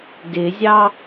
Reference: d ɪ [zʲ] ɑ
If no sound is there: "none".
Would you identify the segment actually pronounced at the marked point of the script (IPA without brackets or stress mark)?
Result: zʲ